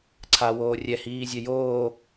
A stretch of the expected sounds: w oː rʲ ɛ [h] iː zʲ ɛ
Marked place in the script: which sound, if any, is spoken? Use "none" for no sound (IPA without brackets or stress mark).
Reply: h